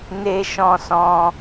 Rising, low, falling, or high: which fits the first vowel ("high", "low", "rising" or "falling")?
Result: high